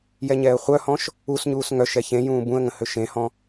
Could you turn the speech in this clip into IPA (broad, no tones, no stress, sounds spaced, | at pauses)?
j ɛ ɲ ɛː ə̯ χʷ œ h ɔ̃ ʃ | u s ɲ uː s ŋ œ ʃ ɛ ç ẽ j ũː b ũ ə̯ ŋ ə̃ h ø ʃ ẽ h ɔ̃